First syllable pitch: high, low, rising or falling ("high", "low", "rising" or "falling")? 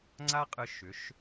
high